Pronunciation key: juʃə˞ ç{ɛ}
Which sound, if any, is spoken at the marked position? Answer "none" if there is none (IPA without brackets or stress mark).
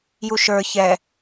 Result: ɛ